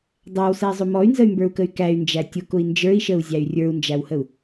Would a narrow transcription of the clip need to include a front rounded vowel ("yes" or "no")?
yes